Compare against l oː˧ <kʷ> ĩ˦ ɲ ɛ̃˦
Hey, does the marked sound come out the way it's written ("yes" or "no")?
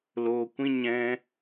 yes